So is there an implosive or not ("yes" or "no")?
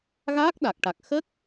yes